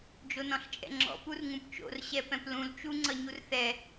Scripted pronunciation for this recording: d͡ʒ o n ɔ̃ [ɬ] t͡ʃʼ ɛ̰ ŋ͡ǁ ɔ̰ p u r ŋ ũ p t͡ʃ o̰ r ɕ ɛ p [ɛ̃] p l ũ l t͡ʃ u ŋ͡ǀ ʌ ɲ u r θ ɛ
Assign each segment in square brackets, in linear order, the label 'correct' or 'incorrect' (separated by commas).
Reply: correct, correct